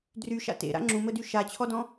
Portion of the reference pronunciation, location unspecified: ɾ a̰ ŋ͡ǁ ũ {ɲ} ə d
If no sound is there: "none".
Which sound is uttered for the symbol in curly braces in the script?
m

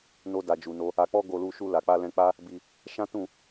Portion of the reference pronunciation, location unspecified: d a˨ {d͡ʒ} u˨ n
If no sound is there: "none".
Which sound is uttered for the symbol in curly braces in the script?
d͡ʒ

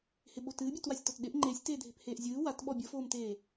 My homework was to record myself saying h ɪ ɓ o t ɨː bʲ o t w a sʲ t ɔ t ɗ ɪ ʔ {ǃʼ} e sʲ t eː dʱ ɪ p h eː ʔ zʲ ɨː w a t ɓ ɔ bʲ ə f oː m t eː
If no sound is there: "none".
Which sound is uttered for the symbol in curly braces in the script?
ŋ͡ǃ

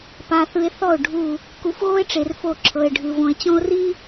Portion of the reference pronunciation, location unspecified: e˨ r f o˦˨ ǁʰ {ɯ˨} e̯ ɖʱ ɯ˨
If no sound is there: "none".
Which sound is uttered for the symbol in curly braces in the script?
ɤ˨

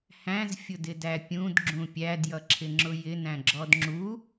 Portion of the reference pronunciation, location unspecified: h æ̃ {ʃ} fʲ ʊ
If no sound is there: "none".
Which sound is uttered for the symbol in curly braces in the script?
z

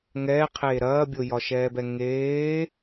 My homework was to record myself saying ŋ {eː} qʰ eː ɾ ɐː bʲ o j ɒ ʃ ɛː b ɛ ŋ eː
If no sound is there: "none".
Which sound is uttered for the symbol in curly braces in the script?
ɛː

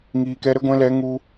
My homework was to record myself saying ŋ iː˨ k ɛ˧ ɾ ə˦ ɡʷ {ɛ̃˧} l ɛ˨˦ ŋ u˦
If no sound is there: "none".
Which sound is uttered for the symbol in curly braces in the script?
ɛ̃˧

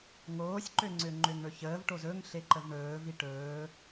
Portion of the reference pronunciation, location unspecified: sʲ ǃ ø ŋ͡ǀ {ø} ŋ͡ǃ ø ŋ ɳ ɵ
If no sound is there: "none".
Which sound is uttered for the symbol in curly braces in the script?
ø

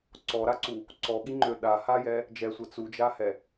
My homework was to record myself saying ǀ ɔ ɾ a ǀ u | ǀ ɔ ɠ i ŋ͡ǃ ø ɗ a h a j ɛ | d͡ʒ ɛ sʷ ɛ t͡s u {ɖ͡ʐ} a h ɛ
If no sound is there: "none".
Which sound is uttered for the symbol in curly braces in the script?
d͡ʒ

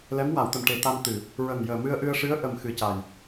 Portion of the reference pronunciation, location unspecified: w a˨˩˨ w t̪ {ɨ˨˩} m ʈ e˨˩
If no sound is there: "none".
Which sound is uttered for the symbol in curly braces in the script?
ə˨˩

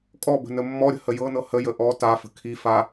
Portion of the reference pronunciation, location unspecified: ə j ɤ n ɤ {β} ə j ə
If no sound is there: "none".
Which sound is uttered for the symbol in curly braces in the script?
h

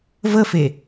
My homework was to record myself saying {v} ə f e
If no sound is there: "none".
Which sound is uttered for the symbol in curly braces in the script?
v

